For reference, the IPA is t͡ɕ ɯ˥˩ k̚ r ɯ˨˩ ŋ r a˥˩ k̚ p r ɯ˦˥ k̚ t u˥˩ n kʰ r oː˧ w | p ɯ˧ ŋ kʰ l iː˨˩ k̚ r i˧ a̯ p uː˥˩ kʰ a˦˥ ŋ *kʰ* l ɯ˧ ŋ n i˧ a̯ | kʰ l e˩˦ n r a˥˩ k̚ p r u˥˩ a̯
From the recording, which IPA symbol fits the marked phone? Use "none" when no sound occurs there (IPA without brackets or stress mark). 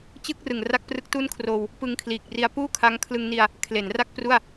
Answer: kʰ